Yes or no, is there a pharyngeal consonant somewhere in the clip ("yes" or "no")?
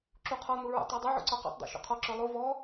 yes